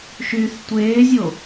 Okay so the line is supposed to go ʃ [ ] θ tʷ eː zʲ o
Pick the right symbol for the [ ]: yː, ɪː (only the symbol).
yː